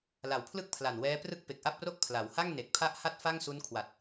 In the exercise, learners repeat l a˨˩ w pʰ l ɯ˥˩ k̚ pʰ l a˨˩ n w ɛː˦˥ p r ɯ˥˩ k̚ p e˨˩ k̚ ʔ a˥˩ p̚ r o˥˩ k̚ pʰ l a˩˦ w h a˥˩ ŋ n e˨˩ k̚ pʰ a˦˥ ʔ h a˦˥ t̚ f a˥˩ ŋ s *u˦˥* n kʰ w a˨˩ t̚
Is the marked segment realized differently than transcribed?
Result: no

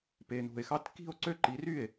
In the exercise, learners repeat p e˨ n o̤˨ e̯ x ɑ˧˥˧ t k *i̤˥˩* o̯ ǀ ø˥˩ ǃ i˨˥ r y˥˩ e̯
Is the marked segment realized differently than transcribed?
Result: no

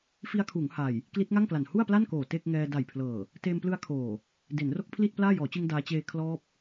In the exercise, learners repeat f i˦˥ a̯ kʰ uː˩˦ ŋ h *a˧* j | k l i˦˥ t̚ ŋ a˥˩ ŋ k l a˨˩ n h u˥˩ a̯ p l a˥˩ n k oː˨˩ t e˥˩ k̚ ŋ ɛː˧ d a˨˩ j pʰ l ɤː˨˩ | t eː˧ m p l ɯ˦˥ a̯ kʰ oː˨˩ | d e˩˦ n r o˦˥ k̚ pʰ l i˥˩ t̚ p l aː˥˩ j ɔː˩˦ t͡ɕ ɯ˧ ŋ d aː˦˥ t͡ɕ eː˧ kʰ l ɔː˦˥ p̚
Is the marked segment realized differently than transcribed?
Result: yes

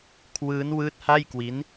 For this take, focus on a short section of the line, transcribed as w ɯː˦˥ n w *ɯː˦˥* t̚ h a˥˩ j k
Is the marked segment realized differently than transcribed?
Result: no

